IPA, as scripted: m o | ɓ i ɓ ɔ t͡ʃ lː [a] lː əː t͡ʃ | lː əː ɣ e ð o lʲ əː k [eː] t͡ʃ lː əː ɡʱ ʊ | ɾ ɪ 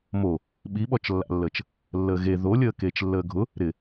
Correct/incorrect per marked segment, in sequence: incorrect: a̰, correct

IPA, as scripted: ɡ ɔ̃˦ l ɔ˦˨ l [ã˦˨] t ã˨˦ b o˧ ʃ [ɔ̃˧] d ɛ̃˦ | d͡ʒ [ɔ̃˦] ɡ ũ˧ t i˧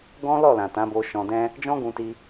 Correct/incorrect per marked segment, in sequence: incorrect: ã˨, correct, correct

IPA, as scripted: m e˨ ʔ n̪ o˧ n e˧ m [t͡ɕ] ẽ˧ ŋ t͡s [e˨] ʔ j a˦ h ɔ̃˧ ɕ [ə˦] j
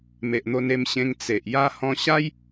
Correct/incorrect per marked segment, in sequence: incorrect: ɕ, correct, incorrect: a˦

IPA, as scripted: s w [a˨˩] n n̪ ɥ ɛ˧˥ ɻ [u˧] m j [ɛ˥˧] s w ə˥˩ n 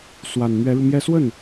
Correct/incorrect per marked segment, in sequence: correct, correct, correct

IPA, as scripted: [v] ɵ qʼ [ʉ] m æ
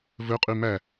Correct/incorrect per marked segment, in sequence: correct, correct

